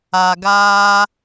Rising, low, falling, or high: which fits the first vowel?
low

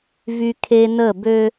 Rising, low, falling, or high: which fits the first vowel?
high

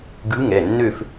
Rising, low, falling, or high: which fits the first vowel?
rising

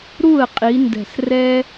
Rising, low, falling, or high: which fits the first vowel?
falling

